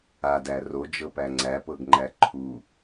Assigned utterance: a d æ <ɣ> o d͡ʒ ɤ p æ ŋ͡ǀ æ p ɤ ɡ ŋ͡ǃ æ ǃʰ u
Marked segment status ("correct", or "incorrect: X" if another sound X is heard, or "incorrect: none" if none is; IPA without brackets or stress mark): incorrect: r